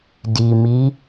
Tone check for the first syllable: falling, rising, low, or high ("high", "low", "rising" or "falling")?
low